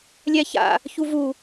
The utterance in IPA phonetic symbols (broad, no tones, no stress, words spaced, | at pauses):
lʲɛça̰ | çuvu